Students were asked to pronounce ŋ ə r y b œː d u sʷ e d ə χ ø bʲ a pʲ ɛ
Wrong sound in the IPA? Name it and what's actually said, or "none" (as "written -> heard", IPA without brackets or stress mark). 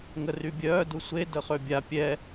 b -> bʲ